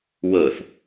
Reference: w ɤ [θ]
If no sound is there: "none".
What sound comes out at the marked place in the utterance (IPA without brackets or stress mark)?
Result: θ